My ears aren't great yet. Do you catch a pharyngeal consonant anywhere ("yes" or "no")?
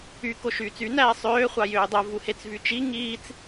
no